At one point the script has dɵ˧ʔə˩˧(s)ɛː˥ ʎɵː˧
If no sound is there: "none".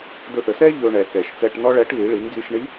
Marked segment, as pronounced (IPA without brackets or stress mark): s